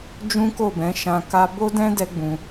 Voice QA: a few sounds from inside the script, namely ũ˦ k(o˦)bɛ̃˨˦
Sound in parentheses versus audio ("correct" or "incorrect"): incorrect